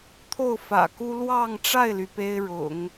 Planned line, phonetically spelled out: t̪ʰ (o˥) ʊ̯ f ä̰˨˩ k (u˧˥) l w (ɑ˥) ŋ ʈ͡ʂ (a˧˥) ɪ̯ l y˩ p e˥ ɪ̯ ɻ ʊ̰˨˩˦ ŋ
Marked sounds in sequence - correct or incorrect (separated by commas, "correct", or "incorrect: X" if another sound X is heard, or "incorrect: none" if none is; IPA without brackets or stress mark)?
incorrect: o˥˩, incorrect: u˥, incorrect: ɑ˥˧, incorrect: a˥˩